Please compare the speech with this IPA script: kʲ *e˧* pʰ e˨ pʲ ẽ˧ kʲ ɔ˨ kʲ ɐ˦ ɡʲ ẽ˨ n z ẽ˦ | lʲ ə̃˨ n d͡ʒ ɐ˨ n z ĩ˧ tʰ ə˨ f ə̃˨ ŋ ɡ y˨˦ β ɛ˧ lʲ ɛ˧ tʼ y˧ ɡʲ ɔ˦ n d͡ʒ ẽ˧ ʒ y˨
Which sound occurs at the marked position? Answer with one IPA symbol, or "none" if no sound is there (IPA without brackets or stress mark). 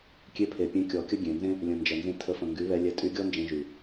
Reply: e˧